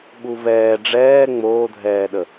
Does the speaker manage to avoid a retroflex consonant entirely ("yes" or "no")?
no